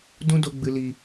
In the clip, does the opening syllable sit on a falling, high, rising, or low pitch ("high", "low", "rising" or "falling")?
high